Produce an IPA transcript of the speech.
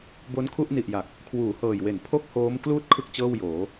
bo˦˥nkʰu˥˩ʔni˨˩ʔja˨˩k̚ | kʰwuː˩˦hɤː˨˩jwe˩˦n pʰo˥˩k̚hoː˦˥m kluː˥˩t̚kʰɯ˦˥k̚ t͡ɕɤː˥˩wjoː˩˦

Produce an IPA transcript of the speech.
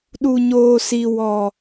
ɗu˨ɲoː˨ si˨wɔ˨

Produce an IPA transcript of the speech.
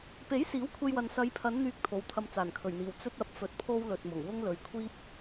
pe˨˥j siː˨˥wkʷʰe˧jwɐ˨n sɐ˨˧jpʰɐ˨˧nn̪yː˨k̚ t̪ʰo˨˧wt̪ʰɐ˧m t͡saː˨˩nkʰɵ˨˩ɥn̪iː˨˩w t͡sɵ˥t̚ɐ˨˥p̚ fɵ˧t̚pʰo˥wlɵ˨t̚mʊ˨˩ŋ wʊ˥ŋlɵ˨ɥkʷʰiː˥p̚

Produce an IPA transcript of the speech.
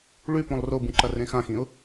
ɭʉpõlˠ robũǃɐ rẽxãxĩʊ̯

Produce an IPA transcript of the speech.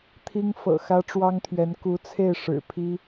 t̪ʰi˥ŋ fɤ̰˨˩xä˥ʈ͡ʂwɑ˥ŋt̪ʰɥɛ˧˥n ku˧˥t͡sʰe˥˩ɪ̯ ʂɻ̩˨˩pʰi˥

